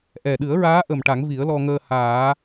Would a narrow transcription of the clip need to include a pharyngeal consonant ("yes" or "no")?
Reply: no